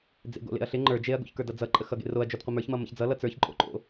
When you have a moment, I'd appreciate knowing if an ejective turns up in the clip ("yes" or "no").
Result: yes